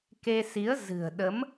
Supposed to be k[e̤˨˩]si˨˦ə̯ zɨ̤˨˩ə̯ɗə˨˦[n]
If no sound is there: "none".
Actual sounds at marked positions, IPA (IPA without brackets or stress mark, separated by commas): e˧, m